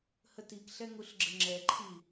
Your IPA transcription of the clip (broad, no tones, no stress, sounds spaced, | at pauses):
h ə t i k ɬ ɛ ŋ u ɬ ɡ͡ǁ ə ŋ͡ǁ ɛ ǃʰ i